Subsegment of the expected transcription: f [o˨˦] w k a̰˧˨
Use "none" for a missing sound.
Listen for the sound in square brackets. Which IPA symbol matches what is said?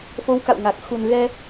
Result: o˨˦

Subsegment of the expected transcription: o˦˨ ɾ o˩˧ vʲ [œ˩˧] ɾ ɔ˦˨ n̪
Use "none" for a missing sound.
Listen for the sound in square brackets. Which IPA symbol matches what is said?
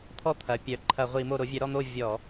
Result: œ˩˧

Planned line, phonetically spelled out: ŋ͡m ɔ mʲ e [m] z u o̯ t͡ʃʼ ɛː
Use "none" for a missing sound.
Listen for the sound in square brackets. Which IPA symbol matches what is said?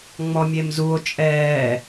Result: m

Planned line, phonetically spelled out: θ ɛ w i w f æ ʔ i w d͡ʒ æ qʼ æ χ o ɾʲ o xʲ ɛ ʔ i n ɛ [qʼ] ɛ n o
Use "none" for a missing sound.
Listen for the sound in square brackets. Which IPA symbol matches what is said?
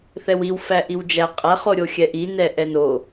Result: ʔ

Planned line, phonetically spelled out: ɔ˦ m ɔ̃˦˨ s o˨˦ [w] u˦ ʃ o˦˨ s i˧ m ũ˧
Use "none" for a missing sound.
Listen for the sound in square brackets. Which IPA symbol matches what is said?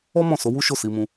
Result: w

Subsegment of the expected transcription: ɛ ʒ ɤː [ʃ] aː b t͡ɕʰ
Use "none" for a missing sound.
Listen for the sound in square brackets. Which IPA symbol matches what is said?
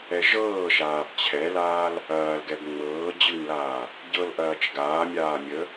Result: ʃ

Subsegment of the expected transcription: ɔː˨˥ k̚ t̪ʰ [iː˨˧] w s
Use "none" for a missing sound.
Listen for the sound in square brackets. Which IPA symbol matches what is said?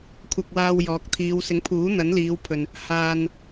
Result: iː˨˧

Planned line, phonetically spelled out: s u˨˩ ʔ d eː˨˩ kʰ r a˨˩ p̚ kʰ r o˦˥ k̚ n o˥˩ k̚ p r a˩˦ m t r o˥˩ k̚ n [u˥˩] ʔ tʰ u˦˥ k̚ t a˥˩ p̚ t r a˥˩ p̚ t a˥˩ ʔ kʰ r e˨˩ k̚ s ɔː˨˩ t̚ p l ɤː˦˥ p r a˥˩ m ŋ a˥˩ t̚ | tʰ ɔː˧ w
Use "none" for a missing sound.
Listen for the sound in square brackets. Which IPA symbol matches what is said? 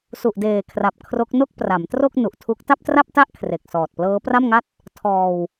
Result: u˨˩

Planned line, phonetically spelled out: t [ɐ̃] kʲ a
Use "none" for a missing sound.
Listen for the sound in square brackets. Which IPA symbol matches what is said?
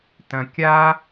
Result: ɐ̃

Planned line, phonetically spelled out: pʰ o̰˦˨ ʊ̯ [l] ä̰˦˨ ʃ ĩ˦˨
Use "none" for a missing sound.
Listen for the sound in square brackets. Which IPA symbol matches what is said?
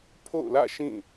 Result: l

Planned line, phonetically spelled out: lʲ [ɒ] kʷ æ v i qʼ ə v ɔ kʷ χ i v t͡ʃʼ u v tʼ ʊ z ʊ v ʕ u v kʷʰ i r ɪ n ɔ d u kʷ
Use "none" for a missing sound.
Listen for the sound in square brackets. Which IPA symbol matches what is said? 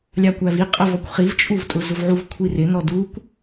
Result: ɑ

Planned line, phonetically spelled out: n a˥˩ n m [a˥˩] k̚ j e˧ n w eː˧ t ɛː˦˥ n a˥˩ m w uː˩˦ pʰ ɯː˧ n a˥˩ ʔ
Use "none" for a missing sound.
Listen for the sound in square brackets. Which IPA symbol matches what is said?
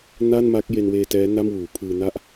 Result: a˦˥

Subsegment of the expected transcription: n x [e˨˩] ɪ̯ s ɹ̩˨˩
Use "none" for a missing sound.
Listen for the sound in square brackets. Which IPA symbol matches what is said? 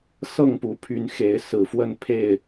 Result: e˨˦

